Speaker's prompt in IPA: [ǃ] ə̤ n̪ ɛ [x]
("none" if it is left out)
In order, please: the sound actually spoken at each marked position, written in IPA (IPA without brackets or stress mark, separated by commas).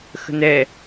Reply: x, none